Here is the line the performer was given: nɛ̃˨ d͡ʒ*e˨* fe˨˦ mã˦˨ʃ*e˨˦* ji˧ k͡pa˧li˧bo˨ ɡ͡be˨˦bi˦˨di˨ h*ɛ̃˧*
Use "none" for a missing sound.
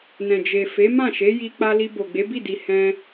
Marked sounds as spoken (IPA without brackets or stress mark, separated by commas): e˨, e˨˦, ɛ̃˧